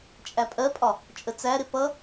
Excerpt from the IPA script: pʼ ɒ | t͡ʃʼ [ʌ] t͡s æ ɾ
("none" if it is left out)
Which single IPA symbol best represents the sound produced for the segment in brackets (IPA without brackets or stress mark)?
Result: ə